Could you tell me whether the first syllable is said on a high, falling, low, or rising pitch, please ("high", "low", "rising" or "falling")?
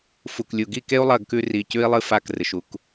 low